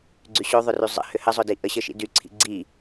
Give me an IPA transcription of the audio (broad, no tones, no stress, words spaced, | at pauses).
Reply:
ɡ͡ǀyɕoðˤʏry zˤə̰ hʏhəzˤʊdi ʔəɕə ʃḭdyǀʰḭ ɡ͡ǀi